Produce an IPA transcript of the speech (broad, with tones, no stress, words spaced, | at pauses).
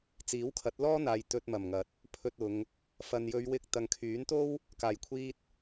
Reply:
t͡siː˨˥wkʰɐ˨˥t̚lɔː˥n̪aː˨j t̪ɵ˧t̚mɐ˨˩mŋɐ˨˥t̚ | pʰɵ˧t̚ʊ˨˧ŋ | fɐ˨njɵ˨˧ɥwɪ˧k̚ t̪ɐ˨ŋkʰyː˨˥nt̪o˥w | kaː˨˩jkʷʰiː˧t̚